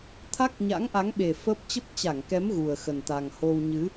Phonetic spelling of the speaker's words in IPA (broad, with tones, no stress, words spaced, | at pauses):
t̪ʰa˦˥k̚ɲa̰˧˥ŋʔa˨˦ŋɓe˨˩ fəː˦˥p̚ t͡ɕə˦˥p̚t͡ɕa˧˩ŋkɛ˨˦m ɣu˨˩ə̯xə˨˩nt̪a˨˩ŋ ho˧w ɲɨ˨˦